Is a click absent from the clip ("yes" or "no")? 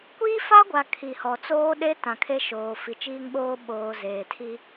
yes